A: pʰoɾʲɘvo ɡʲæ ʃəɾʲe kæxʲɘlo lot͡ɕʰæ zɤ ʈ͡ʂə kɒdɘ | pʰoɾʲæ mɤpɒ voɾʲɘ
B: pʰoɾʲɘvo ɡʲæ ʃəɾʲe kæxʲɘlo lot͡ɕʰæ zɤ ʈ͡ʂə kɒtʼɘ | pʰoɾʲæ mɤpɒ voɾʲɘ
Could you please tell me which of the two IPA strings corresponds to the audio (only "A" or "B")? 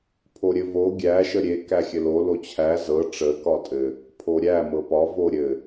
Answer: B